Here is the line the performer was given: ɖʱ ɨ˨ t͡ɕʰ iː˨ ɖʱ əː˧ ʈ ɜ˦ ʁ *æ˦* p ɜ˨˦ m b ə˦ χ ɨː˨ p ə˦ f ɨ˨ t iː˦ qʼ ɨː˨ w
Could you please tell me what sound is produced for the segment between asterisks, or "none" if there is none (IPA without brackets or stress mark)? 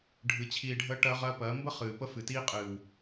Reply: ɜ˦